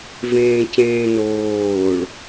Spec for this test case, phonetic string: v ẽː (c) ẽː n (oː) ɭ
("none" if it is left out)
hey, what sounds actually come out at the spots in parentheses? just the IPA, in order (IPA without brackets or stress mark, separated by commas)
c, oː